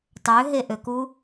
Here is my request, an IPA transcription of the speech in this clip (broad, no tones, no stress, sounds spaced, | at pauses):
tˤ ø ɦ e ʔ ø k u